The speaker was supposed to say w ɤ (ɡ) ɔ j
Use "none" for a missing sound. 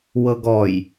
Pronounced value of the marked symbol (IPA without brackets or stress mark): ɡ